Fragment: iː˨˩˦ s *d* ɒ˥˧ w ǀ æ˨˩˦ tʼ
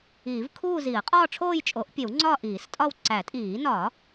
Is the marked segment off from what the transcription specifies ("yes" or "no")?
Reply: yes